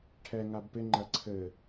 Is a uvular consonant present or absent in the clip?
absent